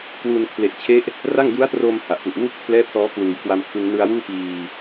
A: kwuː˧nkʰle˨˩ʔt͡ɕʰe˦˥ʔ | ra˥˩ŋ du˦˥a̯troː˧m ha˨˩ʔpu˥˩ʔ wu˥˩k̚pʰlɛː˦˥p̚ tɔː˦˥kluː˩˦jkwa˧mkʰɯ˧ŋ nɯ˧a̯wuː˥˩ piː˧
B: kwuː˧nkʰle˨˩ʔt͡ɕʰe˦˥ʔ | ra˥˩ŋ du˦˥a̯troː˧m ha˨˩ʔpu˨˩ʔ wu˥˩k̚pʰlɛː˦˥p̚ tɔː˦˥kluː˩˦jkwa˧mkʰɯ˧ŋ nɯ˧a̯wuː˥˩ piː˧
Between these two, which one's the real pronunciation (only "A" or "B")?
B